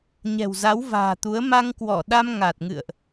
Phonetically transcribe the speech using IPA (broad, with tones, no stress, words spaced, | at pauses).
ɲɛ̤˨˩wza˨˦wva̤ː˨˩t̪u˨˦ə̯ ma˧ŋkwɔ˧˩ɗa˧m ŋa˨˩t̚ŋɨ̰˧˨ə̯ʔ